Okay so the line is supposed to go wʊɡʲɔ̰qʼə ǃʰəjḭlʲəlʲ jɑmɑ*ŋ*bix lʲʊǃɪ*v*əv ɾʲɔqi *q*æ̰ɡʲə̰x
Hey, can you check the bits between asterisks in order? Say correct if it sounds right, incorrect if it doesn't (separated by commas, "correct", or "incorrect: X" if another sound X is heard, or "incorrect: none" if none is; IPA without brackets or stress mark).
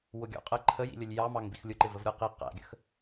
correct, correct, correct